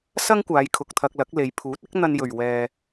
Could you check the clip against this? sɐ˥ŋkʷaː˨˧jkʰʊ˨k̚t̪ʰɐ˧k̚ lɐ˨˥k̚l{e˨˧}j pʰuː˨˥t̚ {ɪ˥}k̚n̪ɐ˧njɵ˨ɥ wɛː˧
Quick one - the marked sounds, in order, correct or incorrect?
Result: correct, correct

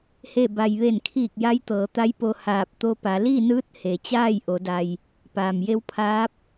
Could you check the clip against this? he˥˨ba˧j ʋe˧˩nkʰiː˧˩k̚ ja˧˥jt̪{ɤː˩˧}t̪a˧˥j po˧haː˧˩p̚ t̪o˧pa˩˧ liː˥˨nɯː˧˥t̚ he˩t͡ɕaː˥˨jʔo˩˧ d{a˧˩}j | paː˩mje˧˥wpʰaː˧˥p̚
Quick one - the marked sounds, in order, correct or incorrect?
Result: correct, incorrect

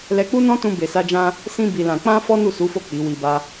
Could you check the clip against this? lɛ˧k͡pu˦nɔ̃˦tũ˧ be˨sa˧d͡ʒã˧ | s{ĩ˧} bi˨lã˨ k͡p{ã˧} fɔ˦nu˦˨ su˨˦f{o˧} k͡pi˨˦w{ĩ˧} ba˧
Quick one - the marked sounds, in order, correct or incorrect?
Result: correct, correct, incorrect, incorrect

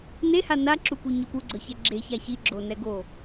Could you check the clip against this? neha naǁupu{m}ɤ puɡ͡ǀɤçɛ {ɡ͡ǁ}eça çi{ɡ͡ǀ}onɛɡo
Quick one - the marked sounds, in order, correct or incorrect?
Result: incorrect, correct, incorrect

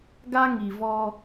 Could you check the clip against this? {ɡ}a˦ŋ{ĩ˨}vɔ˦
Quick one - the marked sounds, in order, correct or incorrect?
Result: correct, incorrect

